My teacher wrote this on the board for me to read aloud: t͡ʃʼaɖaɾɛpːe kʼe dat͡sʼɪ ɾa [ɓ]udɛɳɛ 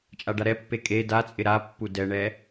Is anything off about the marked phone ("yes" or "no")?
yes